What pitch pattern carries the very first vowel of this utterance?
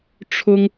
high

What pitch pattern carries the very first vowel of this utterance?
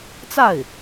falling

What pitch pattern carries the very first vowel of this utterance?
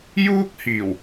high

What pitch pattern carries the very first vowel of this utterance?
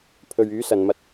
low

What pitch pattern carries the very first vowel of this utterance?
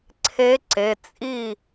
rising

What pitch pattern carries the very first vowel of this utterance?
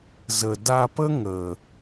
low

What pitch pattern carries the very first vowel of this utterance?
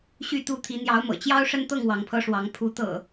falling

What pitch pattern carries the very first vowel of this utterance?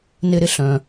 low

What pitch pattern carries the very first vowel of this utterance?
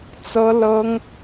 high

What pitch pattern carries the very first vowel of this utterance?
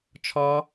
high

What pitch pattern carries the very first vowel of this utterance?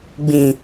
low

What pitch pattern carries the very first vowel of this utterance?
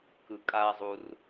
low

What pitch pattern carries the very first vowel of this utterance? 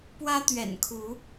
high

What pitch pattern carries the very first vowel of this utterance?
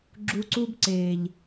high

